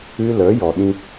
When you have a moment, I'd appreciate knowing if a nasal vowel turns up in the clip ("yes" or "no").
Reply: yes